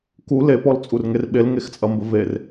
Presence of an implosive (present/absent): present